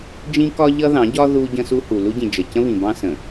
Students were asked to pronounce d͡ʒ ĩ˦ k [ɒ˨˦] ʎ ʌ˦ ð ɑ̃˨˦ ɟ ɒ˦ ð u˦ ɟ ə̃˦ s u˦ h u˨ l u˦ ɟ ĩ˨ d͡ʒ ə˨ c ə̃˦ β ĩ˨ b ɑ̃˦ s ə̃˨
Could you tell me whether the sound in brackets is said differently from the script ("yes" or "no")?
yes